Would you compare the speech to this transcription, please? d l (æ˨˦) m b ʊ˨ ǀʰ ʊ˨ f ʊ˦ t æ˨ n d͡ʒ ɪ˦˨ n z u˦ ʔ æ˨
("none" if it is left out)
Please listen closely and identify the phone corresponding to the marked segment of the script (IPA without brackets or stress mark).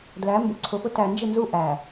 æ˨˦